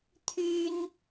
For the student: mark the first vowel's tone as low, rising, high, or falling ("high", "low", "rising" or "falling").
high